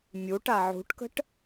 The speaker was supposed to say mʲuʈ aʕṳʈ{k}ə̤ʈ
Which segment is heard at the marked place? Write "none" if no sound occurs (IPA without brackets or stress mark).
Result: k